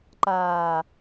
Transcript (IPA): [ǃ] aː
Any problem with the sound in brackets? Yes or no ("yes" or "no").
no